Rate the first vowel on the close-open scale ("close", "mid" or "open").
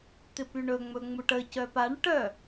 close